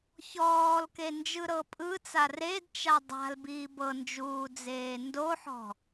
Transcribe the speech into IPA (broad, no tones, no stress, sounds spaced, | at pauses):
ç ɔː l k e n d͡ʒ ɯ ɾ ɤ pʼ ɯ t͡s a r e d t͡ʃ a dˤ a̤ l b iː b ɤ n d͡ʒ uː d͡z eː n d o ħ ɔ̤